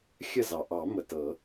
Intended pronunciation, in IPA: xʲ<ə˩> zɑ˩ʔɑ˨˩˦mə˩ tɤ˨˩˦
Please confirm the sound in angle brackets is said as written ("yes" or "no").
no